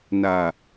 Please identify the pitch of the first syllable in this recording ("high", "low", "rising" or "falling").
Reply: low